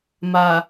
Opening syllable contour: low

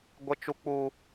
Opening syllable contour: high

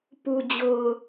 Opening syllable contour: low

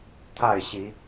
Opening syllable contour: falling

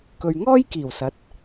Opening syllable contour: low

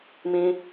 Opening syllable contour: high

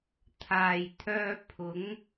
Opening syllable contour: low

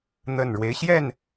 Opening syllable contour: low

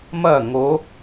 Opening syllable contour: falling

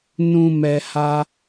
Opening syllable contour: low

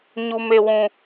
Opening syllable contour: low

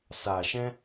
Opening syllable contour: low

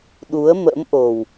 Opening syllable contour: rising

